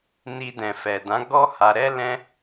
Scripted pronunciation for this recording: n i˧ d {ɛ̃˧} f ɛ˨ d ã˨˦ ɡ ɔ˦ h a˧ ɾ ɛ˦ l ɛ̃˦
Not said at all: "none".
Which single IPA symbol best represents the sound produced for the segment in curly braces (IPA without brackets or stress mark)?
ɛ̃˨